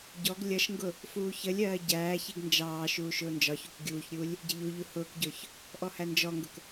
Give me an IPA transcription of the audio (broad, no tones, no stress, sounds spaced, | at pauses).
ɟ ɔ ɡ lʲ ʌ ʃ ŋ ɡ ʊ | f uː ç ə lʲ ɜː ɟ æː ç i ɡ n d͡ʒ ɑː ʃ uː ʃ ʊː n d͡ʒ ɒ ç u k ɡʲ uː ç ɾʲ uː lʲ | ɟ ɪ ʎ u ʎ u h ʊː k ɟ ʊː ç | ʔ ɔ h æ n d͡ʒ ɔ ŋ ɡ ʊ k